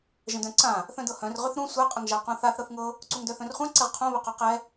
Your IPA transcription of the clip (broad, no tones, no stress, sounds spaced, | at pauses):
ʒ ə̃ d œ̃ ǀ ã | θ œ̃ d ɤ h œ̃ r ʁ ʏ θ ɾ ũ sʷ ɛ qʼ ə ŋ ʒ a q ũ θ a θ ɾ ɤ θ ŋ ɤ | ǀ u ŋ d œ θ œ̃ r χʷ ã ǀ ɪ ʁ qʰ õ β ə q œ q ɛ